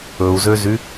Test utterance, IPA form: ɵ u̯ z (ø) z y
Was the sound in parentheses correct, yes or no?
yes